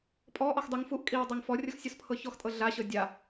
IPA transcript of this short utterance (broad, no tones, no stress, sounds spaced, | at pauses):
pʼ ɔ ʔ ɔ x dˤ ɯ ŋ f u ʔ kʼ i w dˤ ɤ ŋ f ɔ rʲ ɤ x sʲ ɔ s pʰ ɤ ç ɔ x tʼ ɤ ɮ a ɕ ɤ dʲ a